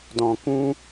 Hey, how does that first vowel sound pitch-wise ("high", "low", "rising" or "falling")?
low